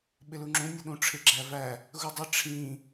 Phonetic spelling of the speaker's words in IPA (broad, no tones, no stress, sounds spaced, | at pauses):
ɓ ɪ l u ŋ͡ǁ ũ nʲ ʊ ɗ ũ ʈ͡ʂʰ ɪ ɡ͡ǁ æ v æ | ɣ u dˤ ɪ ʈ͡ʂʰ ĩ